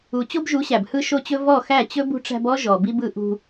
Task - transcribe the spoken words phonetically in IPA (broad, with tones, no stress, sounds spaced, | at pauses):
u˨ t͡ɕ o˦ b ʒ u˨˦ ɕ æ˨ b h ɯ˧ ʃ o˧ t͡ɕ ɵ˧ v ɔ˦˨ x æ˦˨ t͡ɕ ɵ˦ b ṳ˧ ʈ͡ʂ æ̤˧ b ɔ˦ ʒ ɔ˨ b i˧ b ɯ˧ ʔ ṳ˧